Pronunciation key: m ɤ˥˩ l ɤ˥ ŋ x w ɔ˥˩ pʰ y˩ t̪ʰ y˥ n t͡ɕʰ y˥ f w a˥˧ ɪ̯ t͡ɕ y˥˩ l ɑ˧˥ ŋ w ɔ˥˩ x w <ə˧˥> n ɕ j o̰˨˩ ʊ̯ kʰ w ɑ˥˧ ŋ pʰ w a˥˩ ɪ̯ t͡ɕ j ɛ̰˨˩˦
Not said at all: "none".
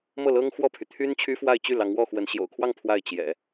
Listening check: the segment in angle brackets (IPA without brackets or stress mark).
ə˧˥